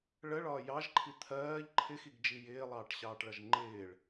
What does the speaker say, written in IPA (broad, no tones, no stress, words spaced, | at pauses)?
ɭəɭɒː jɑʒǃʰi t̪ʰɜːʎ ǃʰɪxiɡd͡ʒi jɪːlˠɑːʈɕɑːʈɭʌʒ ŋ͡ǃɪːɭ